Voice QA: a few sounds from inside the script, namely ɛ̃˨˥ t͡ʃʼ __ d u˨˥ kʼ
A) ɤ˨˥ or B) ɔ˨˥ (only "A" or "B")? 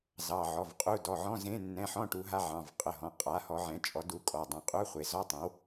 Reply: B